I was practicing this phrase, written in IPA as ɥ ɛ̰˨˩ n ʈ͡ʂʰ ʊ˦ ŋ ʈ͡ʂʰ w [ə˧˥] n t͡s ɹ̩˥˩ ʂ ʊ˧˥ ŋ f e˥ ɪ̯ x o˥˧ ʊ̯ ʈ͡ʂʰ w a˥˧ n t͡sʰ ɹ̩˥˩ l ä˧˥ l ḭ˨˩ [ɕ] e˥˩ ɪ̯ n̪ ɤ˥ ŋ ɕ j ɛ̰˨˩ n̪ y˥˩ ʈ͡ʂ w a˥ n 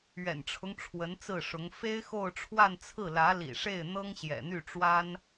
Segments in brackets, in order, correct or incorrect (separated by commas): correct, incorrect